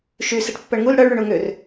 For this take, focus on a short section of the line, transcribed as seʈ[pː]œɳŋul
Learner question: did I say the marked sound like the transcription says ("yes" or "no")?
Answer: yes